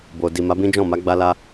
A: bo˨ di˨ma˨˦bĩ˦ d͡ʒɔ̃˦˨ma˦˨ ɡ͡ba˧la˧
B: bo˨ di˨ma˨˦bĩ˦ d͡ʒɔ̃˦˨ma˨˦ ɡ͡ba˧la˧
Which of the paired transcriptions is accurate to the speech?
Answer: B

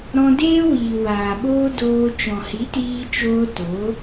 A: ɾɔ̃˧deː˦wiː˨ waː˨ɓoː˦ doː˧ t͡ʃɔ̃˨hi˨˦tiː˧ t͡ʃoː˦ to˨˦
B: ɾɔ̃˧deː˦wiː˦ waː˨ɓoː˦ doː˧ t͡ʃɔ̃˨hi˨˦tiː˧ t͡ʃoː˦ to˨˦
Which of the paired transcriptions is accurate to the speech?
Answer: A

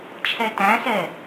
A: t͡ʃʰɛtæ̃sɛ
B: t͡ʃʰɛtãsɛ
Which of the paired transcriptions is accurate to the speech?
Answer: A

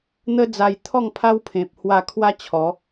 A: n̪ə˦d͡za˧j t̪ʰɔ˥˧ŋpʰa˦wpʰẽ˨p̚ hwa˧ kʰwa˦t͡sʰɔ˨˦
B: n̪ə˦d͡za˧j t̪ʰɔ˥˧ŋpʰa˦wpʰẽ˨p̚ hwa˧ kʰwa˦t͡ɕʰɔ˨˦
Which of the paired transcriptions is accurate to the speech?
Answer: B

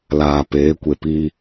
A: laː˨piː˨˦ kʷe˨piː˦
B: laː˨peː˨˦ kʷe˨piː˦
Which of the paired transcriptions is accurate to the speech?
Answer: B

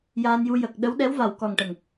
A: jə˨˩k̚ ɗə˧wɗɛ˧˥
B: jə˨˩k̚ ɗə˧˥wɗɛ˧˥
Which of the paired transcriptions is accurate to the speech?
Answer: B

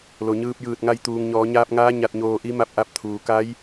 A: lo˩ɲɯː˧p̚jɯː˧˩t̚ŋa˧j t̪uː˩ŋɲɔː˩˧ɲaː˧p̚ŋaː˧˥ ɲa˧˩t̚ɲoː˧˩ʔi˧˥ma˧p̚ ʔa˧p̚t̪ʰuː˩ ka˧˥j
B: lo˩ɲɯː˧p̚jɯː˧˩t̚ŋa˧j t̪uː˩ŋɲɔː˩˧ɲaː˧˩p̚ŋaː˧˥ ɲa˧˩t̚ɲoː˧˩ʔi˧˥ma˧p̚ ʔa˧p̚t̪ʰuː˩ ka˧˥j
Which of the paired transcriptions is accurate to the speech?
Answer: A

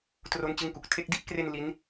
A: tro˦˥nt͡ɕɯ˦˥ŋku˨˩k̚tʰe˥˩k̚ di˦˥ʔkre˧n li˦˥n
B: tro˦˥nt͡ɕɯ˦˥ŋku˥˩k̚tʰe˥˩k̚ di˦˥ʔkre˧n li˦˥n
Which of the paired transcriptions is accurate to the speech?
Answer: A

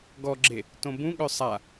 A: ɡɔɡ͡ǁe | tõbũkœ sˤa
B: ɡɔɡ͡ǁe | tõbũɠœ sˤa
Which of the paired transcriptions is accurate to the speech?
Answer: B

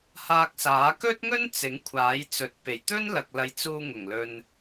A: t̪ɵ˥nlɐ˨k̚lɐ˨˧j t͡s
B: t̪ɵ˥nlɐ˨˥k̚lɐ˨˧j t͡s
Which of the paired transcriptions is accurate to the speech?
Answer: A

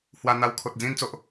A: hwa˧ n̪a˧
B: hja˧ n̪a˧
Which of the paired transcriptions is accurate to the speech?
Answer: A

